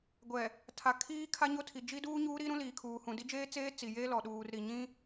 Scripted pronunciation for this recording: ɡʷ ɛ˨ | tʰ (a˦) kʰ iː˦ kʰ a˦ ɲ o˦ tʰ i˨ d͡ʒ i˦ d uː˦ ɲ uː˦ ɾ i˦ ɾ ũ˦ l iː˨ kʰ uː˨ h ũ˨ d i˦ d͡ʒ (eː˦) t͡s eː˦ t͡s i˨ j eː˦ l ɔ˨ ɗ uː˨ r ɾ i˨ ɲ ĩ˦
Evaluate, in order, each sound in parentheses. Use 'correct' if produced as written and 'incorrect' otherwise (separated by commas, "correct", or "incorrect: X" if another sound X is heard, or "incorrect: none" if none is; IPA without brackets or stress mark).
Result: incorrect: a˨, correct